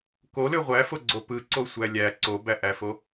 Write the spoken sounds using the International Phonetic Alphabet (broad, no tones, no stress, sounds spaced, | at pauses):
k o l ø ʁʷ æ f o ɡ͡ǀ o p ɯ ǀ o sʷ æ lʲ æ ǀ o b æ ʔ æ f o